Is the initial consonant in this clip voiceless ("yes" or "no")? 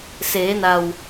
yes